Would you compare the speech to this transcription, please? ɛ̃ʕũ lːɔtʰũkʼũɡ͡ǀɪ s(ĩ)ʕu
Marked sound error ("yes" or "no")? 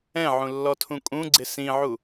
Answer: no